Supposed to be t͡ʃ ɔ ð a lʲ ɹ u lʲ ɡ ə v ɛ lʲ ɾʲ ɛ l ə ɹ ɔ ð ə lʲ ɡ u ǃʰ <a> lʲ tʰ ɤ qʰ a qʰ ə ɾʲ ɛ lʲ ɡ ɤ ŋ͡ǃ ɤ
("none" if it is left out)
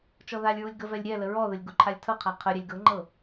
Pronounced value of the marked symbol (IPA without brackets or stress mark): a